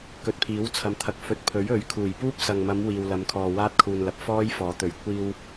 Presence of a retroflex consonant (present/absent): absent